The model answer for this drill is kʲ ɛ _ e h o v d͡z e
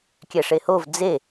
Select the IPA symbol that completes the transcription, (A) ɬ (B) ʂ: B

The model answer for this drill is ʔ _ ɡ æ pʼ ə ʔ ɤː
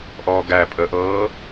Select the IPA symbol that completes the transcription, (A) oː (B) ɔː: B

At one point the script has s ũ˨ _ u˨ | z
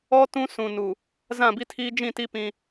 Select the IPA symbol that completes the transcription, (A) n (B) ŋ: A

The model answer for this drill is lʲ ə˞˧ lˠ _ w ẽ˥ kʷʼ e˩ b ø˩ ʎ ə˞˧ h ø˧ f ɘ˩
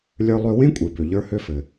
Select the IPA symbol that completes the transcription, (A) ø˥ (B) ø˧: B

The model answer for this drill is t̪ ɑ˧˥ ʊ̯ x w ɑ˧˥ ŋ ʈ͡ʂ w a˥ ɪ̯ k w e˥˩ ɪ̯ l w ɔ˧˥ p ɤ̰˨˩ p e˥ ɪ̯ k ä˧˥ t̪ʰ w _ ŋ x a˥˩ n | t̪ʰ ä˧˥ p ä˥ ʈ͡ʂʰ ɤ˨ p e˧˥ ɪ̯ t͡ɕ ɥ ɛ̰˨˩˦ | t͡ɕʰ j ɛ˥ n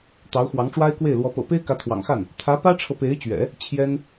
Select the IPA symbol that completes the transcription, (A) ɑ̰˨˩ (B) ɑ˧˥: A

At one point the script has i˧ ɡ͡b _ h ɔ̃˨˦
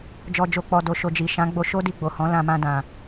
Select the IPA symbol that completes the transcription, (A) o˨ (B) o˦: A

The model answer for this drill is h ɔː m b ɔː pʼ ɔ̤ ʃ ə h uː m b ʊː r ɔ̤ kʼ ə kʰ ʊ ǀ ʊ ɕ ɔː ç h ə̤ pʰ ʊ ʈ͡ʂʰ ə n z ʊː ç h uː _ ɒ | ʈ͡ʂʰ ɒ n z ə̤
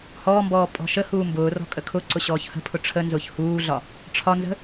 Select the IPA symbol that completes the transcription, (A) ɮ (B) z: A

